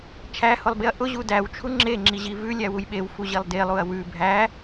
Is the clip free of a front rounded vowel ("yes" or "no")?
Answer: yes